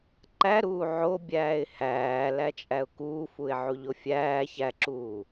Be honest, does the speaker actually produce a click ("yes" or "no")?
yes